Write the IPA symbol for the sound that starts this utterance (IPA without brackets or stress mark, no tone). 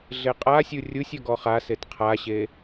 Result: ɮ